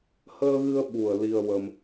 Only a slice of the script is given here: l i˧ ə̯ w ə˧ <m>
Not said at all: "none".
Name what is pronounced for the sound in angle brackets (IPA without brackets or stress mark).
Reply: m